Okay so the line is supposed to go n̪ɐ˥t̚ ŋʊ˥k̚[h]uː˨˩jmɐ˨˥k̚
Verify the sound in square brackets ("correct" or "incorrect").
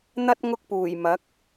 incorrect